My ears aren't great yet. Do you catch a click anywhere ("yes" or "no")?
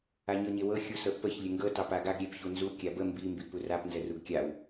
no